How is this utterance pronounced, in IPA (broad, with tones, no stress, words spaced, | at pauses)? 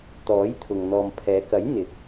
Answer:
t̪ɔː˨˥jt̪ʰʊ˨ŋ n̪ɔː˨mpʰɛː˨˧kɐ˨˥j n̪ɪ˨k̚